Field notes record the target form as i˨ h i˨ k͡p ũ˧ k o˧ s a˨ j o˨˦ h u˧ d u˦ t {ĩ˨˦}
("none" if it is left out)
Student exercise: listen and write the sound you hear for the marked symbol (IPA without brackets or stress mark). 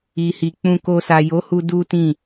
ĩ˦˨